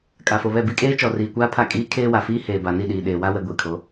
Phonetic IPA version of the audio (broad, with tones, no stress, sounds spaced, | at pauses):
kʼ a˨ f o˨ β ɛ˦˨ b i˦ kʼ eː˦ t͡ʃ ɔ˨ r iː˨ kʷ aː˦ pʰ a˦˨ kʼ iː˦ kʰ eː˦ w a˨ f iː˦ h eː˨ b a˨ n i˦˨ ɗ iː˨ ɗ eː˨ w a˦ w ɛ˨ ɡʷ i˨ kʰ o˨˦